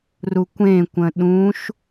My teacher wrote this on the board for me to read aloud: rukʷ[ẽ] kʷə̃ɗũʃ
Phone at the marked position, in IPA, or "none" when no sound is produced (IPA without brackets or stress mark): ẽ